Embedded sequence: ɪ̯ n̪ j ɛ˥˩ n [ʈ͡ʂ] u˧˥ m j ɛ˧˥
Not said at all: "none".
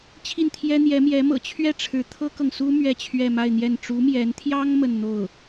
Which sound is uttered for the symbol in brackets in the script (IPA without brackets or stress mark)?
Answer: ʈ͡ʂ